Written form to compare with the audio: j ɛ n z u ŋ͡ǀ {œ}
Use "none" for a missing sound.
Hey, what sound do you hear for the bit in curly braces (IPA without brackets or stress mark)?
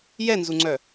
œ